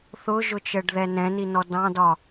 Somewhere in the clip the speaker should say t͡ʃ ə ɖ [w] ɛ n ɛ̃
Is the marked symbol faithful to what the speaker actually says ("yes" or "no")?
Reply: no